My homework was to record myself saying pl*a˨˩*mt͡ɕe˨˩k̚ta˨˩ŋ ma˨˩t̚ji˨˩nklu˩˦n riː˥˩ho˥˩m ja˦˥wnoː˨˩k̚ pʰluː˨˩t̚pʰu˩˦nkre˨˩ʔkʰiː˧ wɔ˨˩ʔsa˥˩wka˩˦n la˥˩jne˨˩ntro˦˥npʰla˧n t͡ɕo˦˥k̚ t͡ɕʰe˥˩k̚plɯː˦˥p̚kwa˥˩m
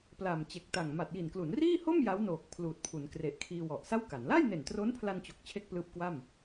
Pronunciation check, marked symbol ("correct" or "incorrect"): correct